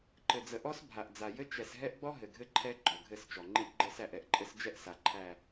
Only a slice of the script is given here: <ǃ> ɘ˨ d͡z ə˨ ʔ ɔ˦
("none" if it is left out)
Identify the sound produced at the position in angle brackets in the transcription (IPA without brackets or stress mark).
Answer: ǃ